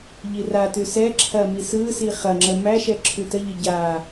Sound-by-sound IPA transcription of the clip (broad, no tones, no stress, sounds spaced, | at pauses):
ʎ i r a t ʉ s ɛ ǁʰ ɐ m i s ɯ s i χ ɐ ŋ͡ǁ ə m æ ʃ ɛ ǁʰ ʉ t ə ʎ ə ɟ a